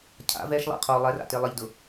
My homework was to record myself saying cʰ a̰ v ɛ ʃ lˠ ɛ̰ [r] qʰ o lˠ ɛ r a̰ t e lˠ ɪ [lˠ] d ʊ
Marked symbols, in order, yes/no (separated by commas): no, no